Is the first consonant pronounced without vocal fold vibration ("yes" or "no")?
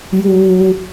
no